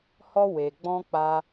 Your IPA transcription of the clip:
h ɔ˦ w e˧ ɡ͡b ɔ̃˦ k͡p a˦

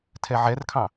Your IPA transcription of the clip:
tʰ ɛ ʕ ɛ r kʰ ɑ̃

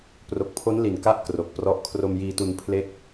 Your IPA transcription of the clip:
p r o˨˩ k̚ pʰ o˦˥ n l i˨˩ n k a˥˩ ʔ k r o˨˩ k̚ p r ɔ˦˥ ʔ kʰ r o˧ m j iː˧ t u˧ n pʰ l e˥˩ k̚

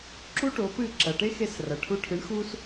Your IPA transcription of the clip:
ǁ u˥ ʈ o˩˥ p ɨ˥˩ ǁ ɐ˩ ʈ e˥ x e˧ s r ɐ˩ ʈʰ u˧ ʈʰ ɨ˩˥ ɳ x u˥ s

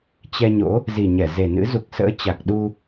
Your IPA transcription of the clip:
t͡ɕ ɛ˧ ɲ o̰˧˥ | z i˨˩ ɲ ɛ˧˩ z e˨˩ n ɨ̰˧˥ z u˨˩ k̚ s ə̰ː˧˥ t͡ɕ a˨˩ k̚ ɗ u˧

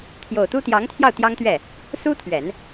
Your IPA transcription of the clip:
t̪ʰ j o˨˩ ʊ̯ t̪ u˥ t̪ j ɑ˧˥ ŋ t̪ʰ j ɑ˥˩ ʊ̯ t̪ j ɑ˥ ŋ t̪ ɥ ɛ˥˩ | s u˥ t̪ʰ ɥ ɛ˨˩˦ n

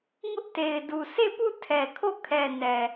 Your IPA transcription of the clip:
ŋ ʊ˦ ʔ t e˨ ɪ̯ d u˨ sʰ e˦˨ p u˦˨ tʰ ɛ˨ kʰ o˦˨ kʰ ɛ˨ n ɛ˨

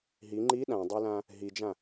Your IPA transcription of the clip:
ɦ i ŋ͡ǃ i ɗ ã dˤ e l ã | ɦ i d͡ʒ ã

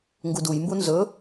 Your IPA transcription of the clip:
ŋ ɡ u d u j m b u n z ɵ

